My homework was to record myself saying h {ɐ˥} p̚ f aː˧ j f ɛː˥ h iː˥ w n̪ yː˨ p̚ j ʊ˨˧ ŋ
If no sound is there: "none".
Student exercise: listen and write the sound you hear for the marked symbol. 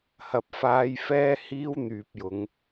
ɐ˨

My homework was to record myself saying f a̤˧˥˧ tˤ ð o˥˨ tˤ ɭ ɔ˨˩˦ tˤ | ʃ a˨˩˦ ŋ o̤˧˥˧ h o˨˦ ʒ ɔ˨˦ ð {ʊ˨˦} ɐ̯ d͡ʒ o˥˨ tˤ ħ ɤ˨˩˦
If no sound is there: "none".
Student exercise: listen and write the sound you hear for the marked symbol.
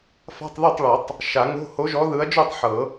ɯ˨˦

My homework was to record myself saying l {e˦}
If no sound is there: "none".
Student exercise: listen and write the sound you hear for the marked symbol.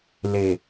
e˨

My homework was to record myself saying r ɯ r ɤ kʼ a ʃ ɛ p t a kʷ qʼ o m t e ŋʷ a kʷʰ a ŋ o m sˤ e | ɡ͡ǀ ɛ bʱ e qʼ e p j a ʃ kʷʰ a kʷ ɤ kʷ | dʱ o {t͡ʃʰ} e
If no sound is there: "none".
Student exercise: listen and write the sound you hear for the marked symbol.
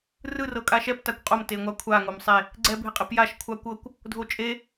t͡ʃʼ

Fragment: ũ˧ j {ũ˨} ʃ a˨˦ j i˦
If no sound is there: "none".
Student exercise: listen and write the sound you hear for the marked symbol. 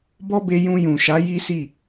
ũ˨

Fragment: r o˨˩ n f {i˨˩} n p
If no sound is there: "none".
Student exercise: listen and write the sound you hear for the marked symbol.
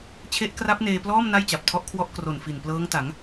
i˨˩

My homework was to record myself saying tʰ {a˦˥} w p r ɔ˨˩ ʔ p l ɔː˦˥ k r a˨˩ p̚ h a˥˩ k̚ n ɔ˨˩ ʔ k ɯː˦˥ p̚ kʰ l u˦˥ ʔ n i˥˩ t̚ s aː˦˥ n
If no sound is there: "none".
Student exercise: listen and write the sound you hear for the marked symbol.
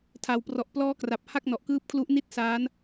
a˨˩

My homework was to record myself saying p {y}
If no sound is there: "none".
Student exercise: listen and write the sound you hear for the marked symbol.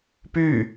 y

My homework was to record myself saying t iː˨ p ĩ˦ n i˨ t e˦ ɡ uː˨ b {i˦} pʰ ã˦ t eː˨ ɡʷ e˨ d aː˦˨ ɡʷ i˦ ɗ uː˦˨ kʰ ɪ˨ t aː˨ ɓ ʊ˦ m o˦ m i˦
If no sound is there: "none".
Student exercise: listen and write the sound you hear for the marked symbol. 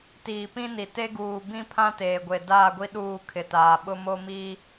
ĩ˦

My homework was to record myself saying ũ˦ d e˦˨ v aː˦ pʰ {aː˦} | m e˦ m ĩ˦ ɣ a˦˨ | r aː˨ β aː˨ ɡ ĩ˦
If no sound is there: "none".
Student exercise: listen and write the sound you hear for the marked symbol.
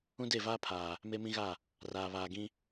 aː˨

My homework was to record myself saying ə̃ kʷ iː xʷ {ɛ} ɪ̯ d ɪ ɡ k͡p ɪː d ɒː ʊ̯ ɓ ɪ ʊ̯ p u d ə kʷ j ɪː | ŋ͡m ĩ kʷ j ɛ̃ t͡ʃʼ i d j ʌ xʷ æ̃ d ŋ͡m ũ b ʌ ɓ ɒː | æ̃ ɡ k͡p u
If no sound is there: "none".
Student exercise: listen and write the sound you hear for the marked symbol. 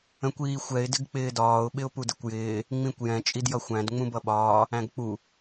ɛ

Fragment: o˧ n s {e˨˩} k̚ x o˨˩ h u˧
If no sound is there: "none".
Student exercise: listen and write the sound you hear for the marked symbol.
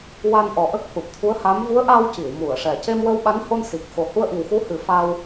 i˨˩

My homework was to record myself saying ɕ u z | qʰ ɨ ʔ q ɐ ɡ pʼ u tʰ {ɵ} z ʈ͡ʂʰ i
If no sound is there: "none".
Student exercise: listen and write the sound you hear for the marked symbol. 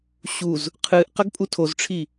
o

